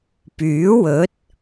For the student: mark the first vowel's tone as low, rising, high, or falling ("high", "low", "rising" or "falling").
rising